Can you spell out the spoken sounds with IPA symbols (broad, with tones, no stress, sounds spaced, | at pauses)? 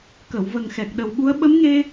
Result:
k ə˨˩˨ w v ə˨˩ ŋ x ɛ˨˩ k̚ ɗ ə˨˩ w ɓ u˧˥ ə̯ ɓ ə˧˥ m ŋ e˧